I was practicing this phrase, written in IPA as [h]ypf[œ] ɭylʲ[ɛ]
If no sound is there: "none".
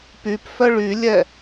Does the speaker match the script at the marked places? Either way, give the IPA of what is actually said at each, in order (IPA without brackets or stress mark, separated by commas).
p, œ, ɛ